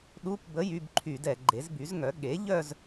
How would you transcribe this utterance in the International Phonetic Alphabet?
ɗ u˧˥˧ p b ə˧˥˧ j y˧˥˧ b ǃʰ y˧˩˧ d ɛ˧˩˧ ɡ͡ǃ e˩˥ z b y˩˥ z ŋ œ˩˥ ɠ e˩˥ ʎ œ˥˧ z

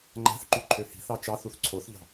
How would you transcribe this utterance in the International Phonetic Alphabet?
ŋ͡ǃ æ̤ θ ǃ y ǃʰ ø h i̤ θ ɑ t͡ʃ ɑ θ u θ ǀʰ o θ ʎ ɑ̤

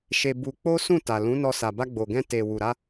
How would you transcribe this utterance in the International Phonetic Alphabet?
ʃ e˧ b u˧ k͡p o˦ s ũ˦˨ t a˨ l ũ˨˦ n ɔ˧ s a˨ b a˧ ɡ͡b o˨ ɡ ɛ̃˧ t e˨ w u˨ ɾ a˧

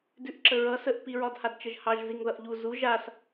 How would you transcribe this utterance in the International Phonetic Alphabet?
d ʉ ʔ ǁ ə ɹ ʌ s ə ʔ p i ɹ ɒ d h a d t͡ʃ ə ʒ h ɑ ʒ z i ŋ ð ʌ ʔ ʎ u z u ʒ a s

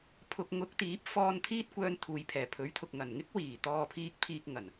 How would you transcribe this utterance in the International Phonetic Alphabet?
pʰ ʊ˧ k̚ ŋ ʊ˨˥ k̚ t̪ iː˨˥ p̚ f ɔː˧ n t̪ʰ iː˥ t̚ kʷ œː˧ n t̪ʰ uː˨ j pʰ ɛː˨˩ pʰ ɵ˨˥ ɥ t̪ʰ ʊ˨ k̚ ŋ ɐ˨˩ n ŋ ɪ˥ k̚ w iː˨˩ t̪ ɔː˧ pʰ iː˧ k̚ pʰ iː˧ k̚ ŋ ɐ˨˩ n

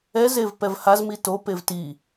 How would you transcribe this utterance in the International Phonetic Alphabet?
ɛ z e v p ɛ v h a z m i t o p e v t i

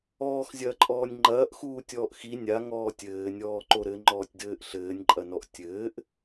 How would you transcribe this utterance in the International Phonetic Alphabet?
ɔː x zʲ ɐː ǃʼ ɔː nʲ ŋ͡ǃ ɐː ʔ x uː tʲ ɔː ʔ x i nʲ a ŋ ɔː tʲ ɘː nʲ ɔː ǃ o ɾ ɘ ŋ͡ǃ ɔː tʲ d ɘː ʔ ɬ ɘː nʲ ǃʼ ɐ n ɔ ʔ tʲ ɘː ʔ

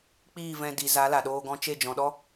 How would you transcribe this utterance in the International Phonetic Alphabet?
k͡p iː˦˨ v ɛ̃˧ d i˨ z a˨˦ l a˨ ɗ oː˧ ɡ ɔ̃˧ t͡ʃ e˦˨ d͡ʒ ɔ̃˨ ɗ ɔ˦

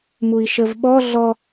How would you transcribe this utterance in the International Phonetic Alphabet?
m u i̯ ʃ ə v ɓ ɔ ɮ ɔ

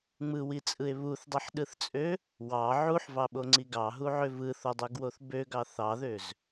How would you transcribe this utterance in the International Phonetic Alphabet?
ŋ͡m ɯ w i t͡sʼ ɯ e̯ β u θ dˤ i ħ ɗ ɯ θ t͡sʼ ø | w ɑ ʕ u ħ v ɑ ɓ o ŋ͡ǀ i ɡ ɑ ɦ u ʕ ø v ɯ θ o dˤ ø ɡ w o θ b ø ɡ ɑ θ ɑ ð ø z

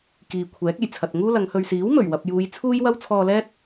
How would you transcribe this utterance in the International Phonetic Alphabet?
k iː˨ kʷʰ ɛː˨˥ k̚ e˨˩ j t͡sʰ ɐ˨ t̚ ŋ uː˥ l ɐ˨˧ ŋ h ɵ˨ ɥ s iː˨˥ w m ɵ˨˩ ɥ w ɐ˨ p̚ j uː˨˧ j t͡sʰ uː˥ j w ɐ˥ w t͡sʰ ɔː˧ l ɛː˥ t̚

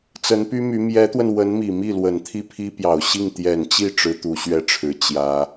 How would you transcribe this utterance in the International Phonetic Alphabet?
t͡s ə˧˥ n p y˥ m y˧˥ m j ɛ˧˥ t̪ w ə˧ n w ə˧˥ n m i˨˩ m i˥˩ l w ə˨˩ n t̪ʰ i˥˩ pʰ i˥ p j ɑ˨˩ ʊ̯ ɕ i˥˩ ŋ t̪ j ɛ˨˩ n t͡ɕ i˥˩ ʈ͡ʂ ɻ̩˥ t̪ u˧˥ ɕ ɥ ɛ˥ ʈ͡ʂʰ ɻ̩˨˩ t͡ɕ j ä˥

